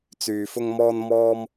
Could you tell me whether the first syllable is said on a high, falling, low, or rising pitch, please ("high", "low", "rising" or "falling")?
low